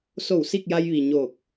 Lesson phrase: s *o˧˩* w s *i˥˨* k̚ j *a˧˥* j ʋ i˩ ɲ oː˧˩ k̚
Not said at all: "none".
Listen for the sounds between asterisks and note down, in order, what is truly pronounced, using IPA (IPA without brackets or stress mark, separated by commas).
o˧˩, i˥˨, a˧